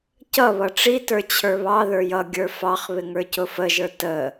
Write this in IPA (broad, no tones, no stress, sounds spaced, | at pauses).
c ʌ β ʌ ʈ͡ʂ i t ə˞ t͡ɕʰ ə˞ β ɑ ð ə˞ j ʌ ɡʲ ə˞ f ɑ χ β ɪ ŋ ə˞ c ʊ f ə ʒ ə˞ t ə